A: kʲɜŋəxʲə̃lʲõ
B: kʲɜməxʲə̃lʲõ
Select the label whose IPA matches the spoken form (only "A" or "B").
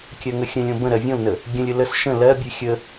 A